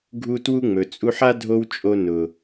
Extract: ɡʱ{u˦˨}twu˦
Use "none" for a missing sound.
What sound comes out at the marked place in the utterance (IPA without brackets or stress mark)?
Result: u˦